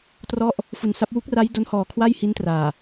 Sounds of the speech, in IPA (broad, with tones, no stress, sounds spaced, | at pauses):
t r ɔ˥˩ ʔ | f u˨˩ n s a˦˥ p̚ w u˦˥ k̚ r a˦˥ j d o˧ n h ɔː˨˩ kʰ w a˥˩ j h i˦˥ n t r aː˨˩